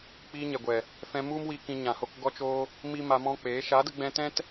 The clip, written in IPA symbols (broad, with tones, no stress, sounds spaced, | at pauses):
k͡p iː˧ ɲ ɛ˨ ɡʷ ɛ˨ | f ɛ̃˧ m u˦ m w i˧ k ĩ˧ ɲ ã˨ h o˧ k ɡ ɔ˦ t͡ʃ oː˦ | m i˦ m a˧ m ɔ̃˦ k͡p eː˨˦ ʃ a˨˦ d ə˧ ɡ͡b ɛ̃˧ t ɛ̃˦ t